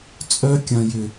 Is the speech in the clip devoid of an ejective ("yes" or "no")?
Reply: no